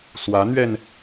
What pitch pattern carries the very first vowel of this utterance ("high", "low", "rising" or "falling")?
rising